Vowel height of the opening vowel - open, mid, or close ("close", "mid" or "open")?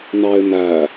open